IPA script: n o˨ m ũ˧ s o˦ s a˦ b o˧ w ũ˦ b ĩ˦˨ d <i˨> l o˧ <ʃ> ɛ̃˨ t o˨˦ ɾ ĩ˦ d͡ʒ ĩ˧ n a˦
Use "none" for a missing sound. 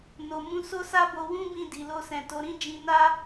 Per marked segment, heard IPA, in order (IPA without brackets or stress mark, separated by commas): i˨, s